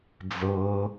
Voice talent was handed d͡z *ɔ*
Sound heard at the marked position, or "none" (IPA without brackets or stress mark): ɤ